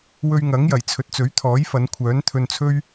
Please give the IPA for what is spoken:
w ɵ˧ ɥ ŋ ɐ˨˥ ŋ j ɐ˨˩ j t͡sʰ ɵ˨ t̚ t͡s ɵ˨˥ ɥ t̪ʰ ɔː˨˥ j f ɐ˨˧ n kʷʰ œː˨˥ n t̪ʰ ɵ˧ n t͡sʰ ɵ˥ ɥ

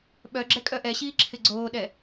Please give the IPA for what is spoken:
ɓ œ ɡ͡ǁ ɛ kʼ œ ʔ ɛ ɕ iː ǁʰ ɪ ɡ͡ǀ oː ɗ ɛ

